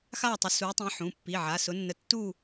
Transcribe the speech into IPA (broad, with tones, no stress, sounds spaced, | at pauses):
x a˥˧ tˤ ʊ˨˦ s u˨˦ tˤ ĩ˨˦ ħ ũ˩˧˩ pː i˩˧˩ ʕ a˩˧˩ s ʊ˨˦ nː ə˨˦ tː u˥˧